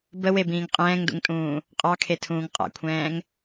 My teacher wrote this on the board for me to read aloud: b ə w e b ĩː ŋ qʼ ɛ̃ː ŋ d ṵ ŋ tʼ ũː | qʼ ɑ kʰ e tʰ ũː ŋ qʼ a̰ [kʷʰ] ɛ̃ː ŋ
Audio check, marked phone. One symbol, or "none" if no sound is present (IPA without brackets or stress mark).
kʷʰ